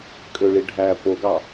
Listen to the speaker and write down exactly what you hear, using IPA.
kʼ ø ɭ i ɖʱ æ p o ɡ ɑ

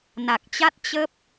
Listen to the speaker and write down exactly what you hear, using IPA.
n a˨˩ k̚ t͡ɕ a˦˥ t̚ t͡ɕ ə˦˥ p̚

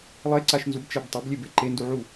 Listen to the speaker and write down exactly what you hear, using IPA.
lˠ e ǀ a ʃ n z u b t͡ʃ æ b tˤ a b lʲ e b e ǃ e n d u ʕ u

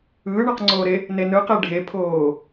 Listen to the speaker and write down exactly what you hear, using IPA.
ɯː ɳ ʌ q ŋ͡ǀ oː ɾ e | n e n ɯ q e ɖʱ e pʰ oː

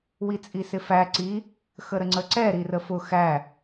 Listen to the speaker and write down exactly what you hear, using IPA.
w i t͡sʼ i s ɪ f æ ǀ i | x ə ɾ ə ŋ͡ǀ ə ǀ ɛ ɾ i r ə f ʊ x æ

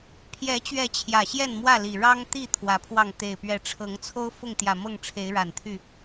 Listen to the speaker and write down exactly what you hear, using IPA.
pʰ j ɛ˨˦ t͡ɕ ɥ ɛ˨˦ t͡ɕʰ j ä˨˩ ɕ j ɛ˥˨ n m w ä˥˨ l i˨˩ ɻ ɑ˦ ŋ t̪ i˥˨ t̪ʰ w ä˨˦ pʰ w ɑ˥˨ ŋ t̪ e˨˩ ɪ̯ p ɥ ɛ˨˦ ʈ͡ʂʰ ɤ˨˦ ŋ t͡sʰ o˦ ʊ̯ f ʊ˥˨ ŋ t̪ j ä˨˩ m ɤ˥˨ ŋ ʈ͡ʂʰ e˨˦ ɪ̯ ɻ a˨˩ n t̪ʰ y˥˨

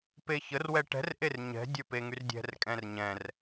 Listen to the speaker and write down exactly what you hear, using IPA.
p e ç ə r w ɛ ʈ ɛ̤ r ʔ e r ɲ ɛ̤ dʲ ə˞ p e ŋ y r dʲ ɛ̤ r kʼ ɛ̃ r ɲ ɛ̃ r

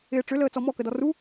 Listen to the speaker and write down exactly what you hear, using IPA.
ɪː ʈ͡ʂ ʏ l əː t͡s ɔ m ɔ k ə d ɔ r u

